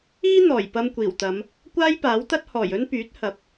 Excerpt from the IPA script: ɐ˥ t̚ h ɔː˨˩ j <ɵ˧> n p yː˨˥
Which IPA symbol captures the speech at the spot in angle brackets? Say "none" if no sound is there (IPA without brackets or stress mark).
ɵ˥